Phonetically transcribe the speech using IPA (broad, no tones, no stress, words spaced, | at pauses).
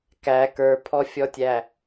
kæ kə˞pʰɔfʲɔtʲæ